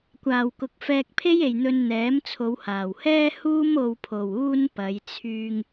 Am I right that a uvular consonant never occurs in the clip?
yes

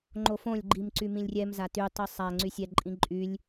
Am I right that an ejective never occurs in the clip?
no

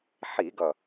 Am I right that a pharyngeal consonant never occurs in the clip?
no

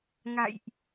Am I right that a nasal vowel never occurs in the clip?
yes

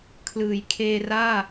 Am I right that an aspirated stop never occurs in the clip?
no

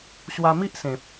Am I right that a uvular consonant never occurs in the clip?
yes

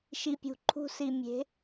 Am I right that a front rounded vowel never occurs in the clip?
yes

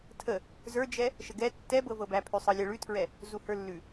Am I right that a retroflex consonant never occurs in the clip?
no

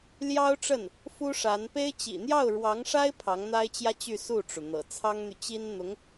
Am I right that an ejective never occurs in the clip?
yes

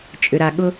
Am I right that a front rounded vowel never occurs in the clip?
no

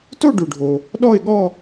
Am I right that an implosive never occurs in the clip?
no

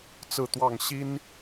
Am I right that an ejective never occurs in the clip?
yes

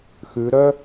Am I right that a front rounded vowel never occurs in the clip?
no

